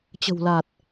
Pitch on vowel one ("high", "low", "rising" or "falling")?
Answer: low